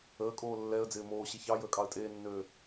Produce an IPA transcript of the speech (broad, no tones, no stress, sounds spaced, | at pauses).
əː kʼ oː lː ɛ ə̯ d͡z ɪː m oː ɕ ɪ ç ɑ j əː kʼ ɑ ə̯ tʼ eː nː øː